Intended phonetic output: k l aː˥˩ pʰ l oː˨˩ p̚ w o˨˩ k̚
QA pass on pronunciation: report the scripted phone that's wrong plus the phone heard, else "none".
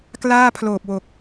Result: none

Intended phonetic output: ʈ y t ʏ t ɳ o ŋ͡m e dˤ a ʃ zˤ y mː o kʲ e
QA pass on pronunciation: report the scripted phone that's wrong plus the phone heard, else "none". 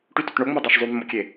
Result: none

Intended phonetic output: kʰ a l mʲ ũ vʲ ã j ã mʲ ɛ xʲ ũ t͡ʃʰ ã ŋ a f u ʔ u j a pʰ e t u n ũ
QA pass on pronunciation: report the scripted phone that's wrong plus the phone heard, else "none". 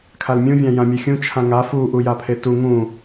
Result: n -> ŋ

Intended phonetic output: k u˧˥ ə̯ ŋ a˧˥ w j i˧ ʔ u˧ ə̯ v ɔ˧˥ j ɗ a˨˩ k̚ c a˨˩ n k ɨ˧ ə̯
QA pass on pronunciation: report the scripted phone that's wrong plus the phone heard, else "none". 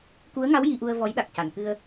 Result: none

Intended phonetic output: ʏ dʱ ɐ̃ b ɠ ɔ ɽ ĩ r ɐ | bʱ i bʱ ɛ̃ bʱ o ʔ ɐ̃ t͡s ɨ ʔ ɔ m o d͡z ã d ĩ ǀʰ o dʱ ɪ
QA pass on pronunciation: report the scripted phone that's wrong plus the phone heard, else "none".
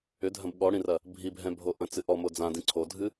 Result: ɪ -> ɨ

